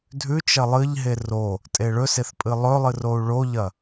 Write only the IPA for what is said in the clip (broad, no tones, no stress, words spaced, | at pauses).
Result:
dʱʉt͡ʃɐ lˠɨʎɦe ro | tʼeɭɵseθ pʼɨlˠɵlˠɨ rou̯ɭoʎɐ